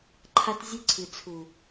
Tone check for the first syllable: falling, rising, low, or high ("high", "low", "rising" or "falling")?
high